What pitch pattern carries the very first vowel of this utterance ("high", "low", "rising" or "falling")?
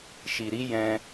low